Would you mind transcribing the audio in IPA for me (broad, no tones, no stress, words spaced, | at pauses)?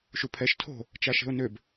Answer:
ʃupʰɛʃ tʰo̤ | t͡ʃaʃe̤ʊ̯nøb